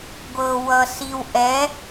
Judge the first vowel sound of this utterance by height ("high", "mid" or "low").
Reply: mid